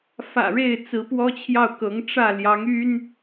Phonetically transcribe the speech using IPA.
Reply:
f ä̰˨˩ ɻ e˥˩ ɪ̯ t͡s ɹ̩˧˥ p w ɔ˥ t͡ɕʰ j ɑ˥˩ ʊ̯ k ɤ˧˥ ŋ ʈ͡ʂ ä˥˩ l j ɑ˧˥ ŋ y˥ n

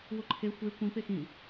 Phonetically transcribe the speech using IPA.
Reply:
w ʊ ǃʰ e xʷ e kʷ ĩ p e x ĩ

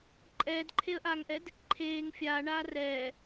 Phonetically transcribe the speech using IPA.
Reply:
ǃʼ ɛː d ǃʰ e ə̯ ʔ aː ŋ ʔ ɛ d | ǃʰ eː ŋ fʲ aː ɳ aː r ɛː

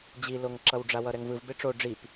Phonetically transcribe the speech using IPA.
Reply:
d͡ʑ i l o ŋ ǁ ʌ w ɖ͡ʐ a w ʌ ɾ ɛ ŋ v ɯ v b e ʈ͡ʂ o ɖ͡ʐ i p

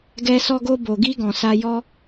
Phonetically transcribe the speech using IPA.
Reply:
ɡ ɛ˧ s ɔ˧ ɡ o˧ b o˨ ɡ i˧ ɡ ɔ̃˨ s a˧ j ɔ˦

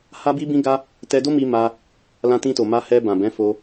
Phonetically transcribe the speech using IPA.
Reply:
h a˧ b i˧ b ĩ˧ ɡ a˧ | t ɛ˧ d o˦ m i˧ m a˧ | l ã˧ t ĩ˧ t o˨ m a˧ h ɛ˧ b ã˨ b ɛ̃˨˦ f o˧

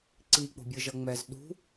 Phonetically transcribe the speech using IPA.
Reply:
ǀ i k͡p o̤ bʲ ɯ ʒ ʌ ŋ͡m ɛ z ɗ ṳ

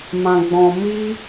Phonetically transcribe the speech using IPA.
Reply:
m ã˨ ɡ͡b ɔ̃˨ m i˦

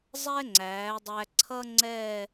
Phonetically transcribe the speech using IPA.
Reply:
zˤ ɛ˥ ŋ͡ǀ æː˩˧ dˤ æ˧ ǀʰ ʌ˥ ŋ͡ǀ ɛ˥˧

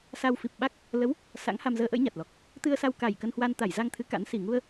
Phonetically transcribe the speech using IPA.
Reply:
s a˧ w f i˨˩ p̚ ɓ a˦˥ k̚ | l ə˨˦ w | s a̰˧˥ ŋ h a˧ m z əː˧ ʔ ə̰˧˥ j ɲ a˨˩ t̚ l ɔ˨˩ k̚ | t̪ ɨ˧ ə̯ s a˧ w k a˨˩ j k ə˧ n h w a˧ n t̪ a˧˩ j z a˧ ŋ t̪ʰ ɨ˨˦ k a̰˧˥ n s i˨˩ ŋ u˧ ə̯

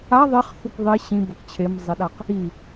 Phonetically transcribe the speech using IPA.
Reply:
a ðˤ e χ θ u k ðˤ e ɕ ĩ b ɐ k t͡ɕʰ e m zˤ e ɗ a q | i

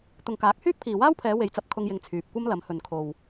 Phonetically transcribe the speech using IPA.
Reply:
t̪ ʊ˨ ŋ k aː˨˥ k̚ h yː˥ k̚ pʰ iː˨ w aː˥ w pʰ ɛː˨˧ w e˨ j t͡s ɐ˧ p̚ kʰ ʊ˧ ŋ j ɪ˨˧ ŋ t͡sʰ yː˨ p̚ kʷ ɐ˥ m l ɐ˨˧ m h ɵ˨ n kʰ o˨ w

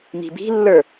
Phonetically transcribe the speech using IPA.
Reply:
m i̤ b i̤ lː ə˞

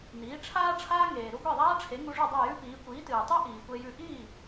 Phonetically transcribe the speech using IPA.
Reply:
n iː˩˥ ʈ͡ʂʰ aː˥ ʈ͡ʂʰ aː˥ ŋ eː˩ ɾ u˥ ɡʷ e˥˩ ðˤ aː˥ ʈ͡ʂʰ e˩˥ ŋ u˧ ʐ u˥˩ dˤ o˥˩ j ʉ˥ p iː˩˥ kʷ iː˩˥ t ɨː˩ tˤ u˥ ʔ iː˩ kʷ e˧ j ʉ˧ ʔ iː˥˩

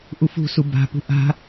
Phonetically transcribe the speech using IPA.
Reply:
ʔ u f ṳ s u b a̤ p ṳ ʔ a̤

